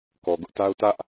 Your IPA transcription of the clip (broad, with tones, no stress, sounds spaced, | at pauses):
k ɔ˨ ɡ ʊ˦ ʔ t a˦ ʊ̯ t ä˦ ʔ